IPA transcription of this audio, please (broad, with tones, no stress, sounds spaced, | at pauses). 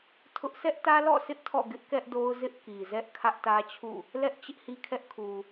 tʰ ʊ˦ ʔ sʰ ɛ˦ ʔ t ä˦ l ɔ̰˦˨ s ɪ˦ ʔ tʰ ɔ̰˦˨ ɡ ɪ˦ ʔ k ɛ˦ ʔ d o˦ ʊ̯ z ɪ˦ ʔ k i˨ z ɛ˦ ʔ kʰ ä˦ ʔ t ä˦ t͡ɕʰ ṵ˦˨ | l ɛ˦ ʔ t͡ɕ ɪ˦ ʔ h i˦ kʰ ɛ˦ ʔ kʰ u˨